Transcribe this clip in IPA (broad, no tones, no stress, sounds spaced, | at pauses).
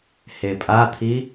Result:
h e pʼ a t̪ʰ i